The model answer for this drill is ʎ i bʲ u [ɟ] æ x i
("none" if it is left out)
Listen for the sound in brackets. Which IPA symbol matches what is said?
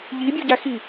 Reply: ɟ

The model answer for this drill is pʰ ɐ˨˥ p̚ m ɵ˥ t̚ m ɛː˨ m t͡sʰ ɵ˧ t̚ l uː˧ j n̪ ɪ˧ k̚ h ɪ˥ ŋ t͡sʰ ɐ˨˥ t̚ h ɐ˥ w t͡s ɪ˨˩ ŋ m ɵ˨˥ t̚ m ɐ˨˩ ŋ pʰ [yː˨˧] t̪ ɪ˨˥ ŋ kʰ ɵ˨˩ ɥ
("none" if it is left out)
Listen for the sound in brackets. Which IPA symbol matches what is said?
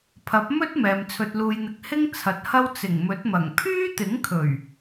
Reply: yː˥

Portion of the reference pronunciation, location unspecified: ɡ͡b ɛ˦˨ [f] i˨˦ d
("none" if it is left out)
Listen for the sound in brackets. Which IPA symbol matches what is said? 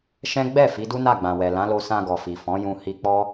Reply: f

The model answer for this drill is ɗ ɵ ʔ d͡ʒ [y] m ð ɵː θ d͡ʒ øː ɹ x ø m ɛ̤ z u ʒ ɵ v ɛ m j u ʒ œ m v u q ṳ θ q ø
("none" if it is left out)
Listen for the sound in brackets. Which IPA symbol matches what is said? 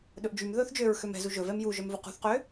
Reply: y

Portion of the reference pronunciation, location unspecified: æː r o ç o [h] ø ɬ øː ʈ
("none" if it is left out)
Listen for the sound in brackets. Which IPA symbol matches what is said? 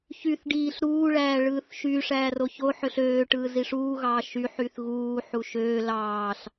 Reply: ħ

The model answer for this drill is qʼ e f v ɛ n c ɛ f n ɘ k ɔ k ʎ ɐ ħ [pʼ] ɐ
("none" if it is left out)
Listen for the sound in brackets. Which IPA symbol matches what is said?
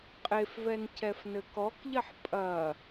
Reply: pʼ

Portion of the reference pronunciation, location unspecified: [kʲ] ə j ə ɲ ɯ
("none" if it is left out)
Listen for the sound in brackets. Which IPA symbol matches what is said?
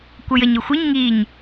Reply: kʷ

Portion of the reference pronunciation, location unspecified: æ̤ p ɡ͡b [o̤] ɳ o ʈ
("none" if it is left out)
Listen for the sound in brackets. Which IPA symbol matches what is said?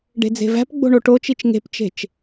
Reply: o̤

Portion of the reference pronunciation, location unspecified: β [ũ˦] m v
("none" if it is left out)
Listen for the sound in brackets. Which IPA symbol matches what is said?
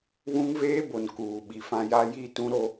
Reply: ũ˦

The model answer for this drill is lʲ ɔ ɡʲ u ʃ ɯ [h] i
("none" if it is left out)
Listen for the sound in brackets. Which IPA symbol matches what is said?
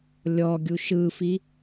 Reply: f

